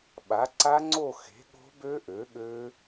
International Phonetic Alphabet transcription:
ɓa˩˥ǀa˦˥ŋ͡ǀo˥˨ xe̤˩˥ ɠo̤˦˥bø˦˥ʔø˩˥ ɠø˦˥

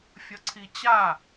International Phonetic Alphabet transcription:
fʲʌǀʰit͡ɕa

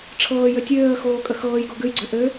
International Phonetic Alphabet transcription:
ʈ͡ʂʰɤːjø tʲøːə̯xoːkʼə xɤːjɡo ɡʉjɡ͡ǀø ʔø

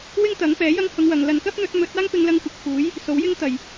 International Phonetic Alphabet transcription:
wɪ˥ŋt̪ɐ˨˥ŋpɛː˨˥jɐ˥ŋ hʊ˧ŋwɐ˨˧ŋlɐ˧n kɐ˥p̚n̪ɵ˨˥t̚ mɵ˨˥t̚ aː˥ŋpɪ˧ŋlɐ˧ŋkʷɐ˨˥k̚ fuː˨˥j | so˨˥wjɪ˥ŋ t̪ɐ˨˩j

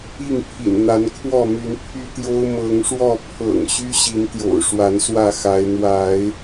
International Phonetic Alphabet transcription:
i˥˨ŋpʰḭ˨˩n n̪a˨˦nkʰwɔ˥˨my˨˦n pʰy˦t̪jo˦ʊ̯ mɤ˨˦ŋʂwɔ˥˨ pʰɤ̰˨˩ŋɕy˦ɕi˨˦nt̪jo̰˨˩ʊ̯ ʂwa˨˦nswä˥˨xa˨˦ɪ̯ n̪wa˨˦ɪ̯

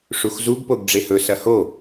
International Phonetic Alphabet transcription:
ʂuxzuɡ poɡɖ͡ʐehɵ sɐho

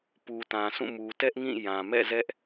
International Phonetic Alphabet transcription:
pu˨tã˨sʰũ˦˨ mu˨tɛ˦ʔ ŋĩ˦˨jã˨ mɛ̰˦˨zɛ˦ʔ

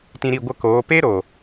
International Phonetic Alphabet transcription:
tĩ˧ɾi˦˨ɡʷə˦˨koː˨˦ pe˦ɾo˨

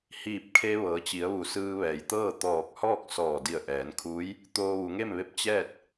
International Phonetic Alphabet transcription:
hiː˧˩p̚kʰe˧ ʋɤː˩˧t͡ɕi˩˧ə̯ʋu˩˧ sɯː˧ʋɛː˩jt̪ɤː˥˨ t̪ɔː˧˩k̚hɔː˥˨k̚ sɔː˧˩di˧˩ə̯ʔɛː˩˧nkʰuː˧˥j | t̪oː˧ʋu˩˧ŋe˥˨mʋe˥˨p̚ t͡ɕɛː˥˨t̚

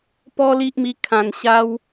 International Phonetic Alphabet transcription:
pɔ˦li˦ʔmi˧ kʰã˨˩n ɕa˦w

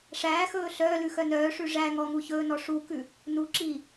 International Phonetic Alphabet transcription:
ʂæːxɵː ɬœːlʉxœ nœːʂʉ ʐæŋɔŋu çɵːnɔ ʂukʉ | nuǁiː

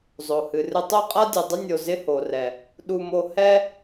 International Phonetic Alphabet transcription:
zˤo˨hɨ˨rɨ˧ tˤo˦qʼa˦dʲɨ˨dˤɪ˦ nʲo˧zɪ˦ho˨rɛ˨ | ɗu˧mo˧hɛ˦

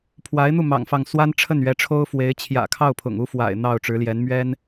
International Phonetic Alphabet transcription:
pʰwa˧˥ɪ̯n̪u˥˩ mɑ̰˨˩ŋfɑ˥˩ŋ swa˥nʈ͡ʂʰə˥˩nɥɛ˧˥ʈ͡ʂʰo˥ʊ̯ fwe˧˥ɪ̯ t͡ɕʰjä̰˨˩kʰɑ˥˩ʊ̯ pʰʊ̰˨˩ŋu˥fwa̰˨˩ɪ̯ n̪ɑ˥˩ʊ̯ʈ͡ʂɻ̩˧˥ljɛ˧˥n mɥɛ˥n

